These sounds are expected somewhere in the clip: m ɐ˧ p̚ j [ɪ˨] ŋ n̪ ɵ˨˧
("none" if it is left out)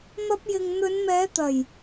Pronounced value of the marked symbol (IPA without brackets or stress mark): ɪ˨